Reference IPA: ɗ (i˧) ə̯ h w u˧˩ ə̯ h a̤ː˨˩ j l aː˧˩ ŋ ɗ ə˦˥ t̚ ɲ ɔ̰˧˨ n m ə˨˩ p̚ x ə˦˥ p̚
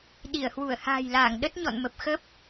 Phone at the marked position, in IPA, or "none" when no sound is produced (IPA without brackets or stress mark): i˧˩